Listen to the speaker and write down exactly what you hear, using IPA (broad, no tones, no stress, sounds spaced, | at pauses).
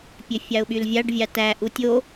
pʲ ø fʲ ɑ ʊ̯ ɓ y l vʲ ɑ ɖ vʲ ɑ t æ ʔ u tʲ o